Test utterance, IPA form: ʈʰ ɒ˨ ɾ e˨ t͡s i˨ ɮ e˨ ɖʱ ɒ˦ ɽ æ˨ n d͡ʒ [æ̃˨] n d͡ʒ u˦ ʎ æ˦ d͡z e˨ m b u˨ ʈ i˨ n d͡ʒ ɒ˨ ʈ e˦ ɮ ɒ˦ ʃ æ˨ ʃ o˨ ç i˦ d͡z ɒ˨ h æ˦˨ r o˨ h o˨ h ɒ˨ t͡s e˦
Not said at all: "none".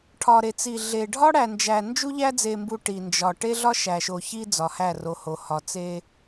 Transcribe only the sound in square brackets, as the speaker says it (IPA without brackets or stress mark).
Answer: æ˨